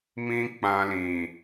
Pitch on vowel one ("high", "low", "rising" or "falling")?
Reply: high